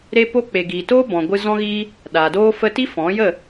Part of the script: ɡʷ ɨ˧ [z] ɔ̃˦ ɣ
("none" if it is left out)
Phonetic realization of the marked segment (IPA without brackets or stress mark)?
z